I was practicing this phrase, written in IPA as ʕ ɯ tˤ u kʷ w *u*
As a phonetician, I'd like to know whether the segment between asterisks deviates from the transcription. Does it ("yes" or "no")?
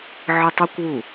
no